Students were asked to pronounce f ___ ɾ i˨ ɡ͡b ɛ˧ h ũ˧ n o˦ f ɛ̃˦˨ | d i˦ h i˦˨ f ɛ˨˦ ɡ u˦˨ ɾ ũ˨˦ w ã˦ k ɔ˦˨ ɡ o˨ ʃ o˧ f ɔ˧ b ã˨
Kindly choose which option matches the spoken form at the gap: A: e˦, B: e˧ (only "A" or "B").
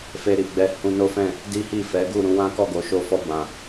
B